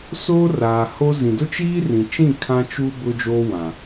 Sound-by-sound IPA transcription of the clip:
soː˦raː˨ho˦zĩ˨ dʊ˦t͡ʃiː˦rĩ˨t͡ʃĩ˦˨ kʰã˦t͡ʃuː˦ bʊ˦d͡ʒoː˦ wã˨

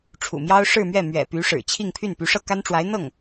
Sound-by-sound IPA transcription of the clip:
ʈ͡ʂʰṵ˨˩mjɑ˥ʊ̯ ʂɻ̩˥˧mɥɛ˥˩ mɥɛ̰˨˩py˧˥ʂɻ̩˨˩ t͡ɕʰi˥˧ŋpʰy˥˩n py˧˥ʂɤ˥˩ka˥n ʈ͡ʂwa˧˥ɪ̯n̪ɤ˥˩ŋ

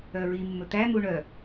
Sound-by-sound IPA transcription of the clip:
œɹimːɵ t̪æn̪u ɳœ

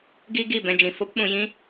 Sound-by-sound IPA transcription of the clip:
ɡi˦ɡi˦˨ bɛ̃˧ d͡ʒĩ˨fo˦p ɓũ˧jĩ˦

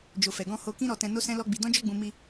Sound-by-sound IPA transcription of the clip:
d͡ʒo˨fɛ˨ɡɔ̃˧ ho˧kĩ˦ ɾɔ˧tɛ̃˧ no˦sɛ̃˦lɔ˦ɡ͡bi˧ dɔ̃˦d͡ʒɔ˦ɡ͡bũ˧ mi˧

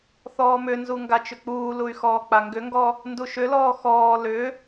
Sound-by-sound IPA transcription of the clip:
θɔːmʏnzu ŋɡat͡ʃʏk͡puːluy̯ xɔːk͡paŋɡʏŋɡɔ | nduʃʏlɔː xɔː lʏ

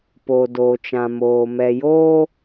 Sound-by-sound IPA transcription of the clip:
po˨doː˨t͡ʃã˨ moː˨mɛ˨joː˦

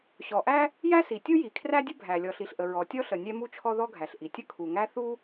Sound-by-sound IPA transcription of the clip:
ɕɔ˩ʔæ˥ | jæ˥si˩tʲu˥ji˩ kʰræ˥dʲə˥ bʱæ˩ lʲɔ˩ɬi˩ɬʔə˩ ɹɔ˩tʲɔ˥ɬə˩ nʲɛ˥mu˥t͡ʃʰɔ˥ ðɔ˥ɡʱæ˩ɬʔi˩ tʲə˥kʰu˩ŋæ˥ θu˥

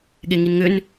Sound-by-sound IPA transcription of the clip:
ɠeŋinŋʏn

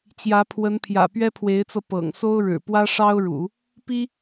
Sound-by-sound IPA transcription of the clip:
t͡ɕjä˧˥pʰwə˧˥npʰjä̰˨˩ pɥɛ˥pʰwe˧˥ɪ̯t͡sɤ˧ pɤ̰˨˩ŋso˥ʊ̯ɻɻ̩˨˩ pwä˥ʂɑ˥ʊ̯ɻṵ˨˩˦ | pi˥

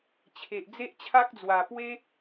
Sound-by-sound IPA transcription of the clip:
t͡ɕʰe˨ʔ d͡ze˦ʔt͡ɕʰa˦k̚d͡zwa˨˩ pwe˦

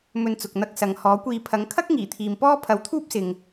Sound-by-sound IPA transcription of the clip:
mɵ˧nt͡sʊ˨k̚n̪ɐ˧k̚ sɐ˨ŋ hɔː˨˥kʷiː˧ pʰɐ˨˥ŋ kʰɐ˥k̚ ŋiː˨˩t̪ʰiː˨mpɔː˥ pʰɐ˨˥wt̪ʰuː˥p̚sɪ˨ŋ

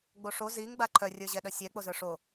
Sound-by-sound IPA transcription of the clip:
ɡ͡boʂo ziŋ ɡ͡baǃʰœ rʲə˞ʑɛɗœsʲɛ k͡pozə˞ʂo

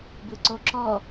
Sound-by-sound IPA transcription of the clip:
bɯǀoǁɔ

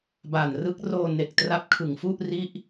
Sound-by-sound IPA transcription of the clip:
ba˨˩nrɯ˦˥k̚roː˧ ne˨˩k̚tra˦˥p̚kʰɯ˨˩ŋfu˥˩ʔ ri˥˩ʔ

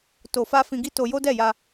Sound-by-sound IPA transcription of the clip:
to˨fa˧ fĩ˧ɡi˦to˧jo˦ dɛ˦˨ja˧

